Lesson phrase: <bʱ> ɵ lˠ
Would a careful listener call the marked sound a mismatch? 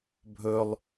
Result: no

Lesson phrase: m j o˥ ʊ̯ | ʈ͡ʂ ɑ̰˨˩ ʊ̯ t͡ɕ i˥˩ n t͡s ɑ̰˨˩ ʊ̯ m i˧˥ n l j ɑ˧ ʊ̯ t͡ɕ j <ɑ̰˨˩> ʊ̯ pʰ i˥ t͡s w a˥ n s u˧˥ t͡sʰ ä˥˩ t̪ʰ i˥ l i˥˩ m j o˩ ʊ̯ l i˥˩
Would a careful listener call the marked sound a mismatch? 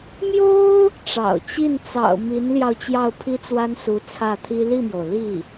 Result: yes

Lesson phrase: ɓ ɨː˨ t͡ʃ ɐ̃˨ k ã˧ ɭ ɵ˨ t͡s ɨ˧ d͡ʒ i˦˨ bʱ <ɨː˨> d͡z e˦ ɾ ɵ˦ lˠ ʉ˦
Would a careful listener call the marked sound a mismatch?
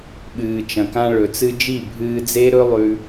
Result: yes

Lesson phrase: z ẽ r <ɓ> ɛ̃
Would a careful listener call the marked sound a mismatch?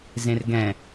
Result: yes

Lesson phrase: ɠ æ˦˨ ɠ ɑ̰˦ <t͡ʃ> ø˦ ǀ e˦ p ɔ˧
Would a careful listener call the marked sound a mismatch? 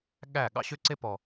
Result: yes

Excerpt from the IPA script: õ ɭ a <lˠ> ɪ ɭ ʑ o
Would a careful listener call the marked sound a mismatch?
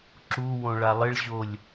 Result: no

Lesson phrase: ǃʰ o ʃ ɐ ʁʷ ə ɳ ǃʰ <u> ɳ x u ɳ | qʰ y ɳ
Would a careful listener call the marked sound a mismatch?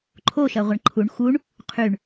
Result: no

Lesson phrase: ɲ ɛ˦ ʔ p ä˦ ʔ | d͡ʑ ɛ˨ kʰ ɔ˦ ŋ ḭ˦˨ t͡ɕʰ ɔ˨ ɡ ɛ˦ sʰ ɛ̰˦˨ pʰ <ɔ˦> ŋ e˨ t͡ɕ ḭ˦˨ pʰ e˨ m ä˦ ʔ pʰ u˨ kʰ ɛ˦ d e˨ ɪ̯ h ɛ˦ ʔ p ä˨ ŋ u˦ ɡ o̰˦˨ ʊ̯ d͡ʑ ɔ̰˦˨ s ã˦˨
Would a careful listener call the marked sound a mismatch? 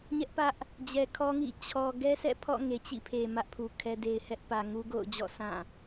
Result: yes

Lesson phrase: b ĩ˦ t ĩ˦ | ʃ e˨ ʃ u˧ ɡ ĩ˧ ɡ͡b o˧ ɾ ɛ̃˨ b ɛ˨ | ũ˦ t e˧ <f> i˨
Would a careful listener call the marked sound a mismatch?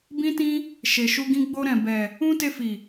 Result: no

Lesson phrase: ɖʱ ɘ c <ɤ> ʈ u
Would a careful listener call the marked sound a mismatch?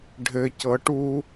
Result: no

